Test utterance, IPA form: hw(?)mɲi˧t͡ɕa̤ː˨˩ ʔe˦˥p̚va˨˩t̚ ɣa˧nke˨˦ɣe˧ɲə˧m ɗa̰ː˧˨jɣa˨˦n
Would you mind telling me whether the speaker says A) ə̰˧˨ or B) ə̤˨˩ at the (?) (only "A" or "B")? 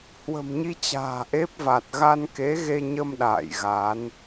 B